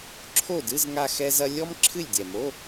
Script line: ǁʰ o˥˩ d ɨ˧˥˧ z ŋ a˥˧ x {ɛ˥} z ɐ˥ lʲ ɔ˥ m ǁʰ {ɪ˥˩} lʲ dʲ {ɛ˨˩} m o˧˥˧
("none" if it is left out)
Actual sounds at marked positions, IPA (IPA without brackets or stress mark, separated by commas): ɛ˥, ɨ˥˩, ɛ˨˩